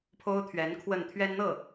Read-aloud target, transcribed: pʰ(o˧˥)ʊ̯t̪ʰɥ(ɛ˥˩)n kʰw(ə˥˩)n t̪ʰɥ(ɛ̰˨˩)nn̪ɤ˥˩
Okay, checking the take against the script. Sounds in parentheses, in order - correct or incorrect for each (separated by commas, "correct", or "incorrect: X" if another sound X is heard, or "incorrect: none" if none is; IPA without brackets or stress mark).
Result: incorrect: o˥, incorrect: ɛ˧˥, correct, incorrect: ɛ˥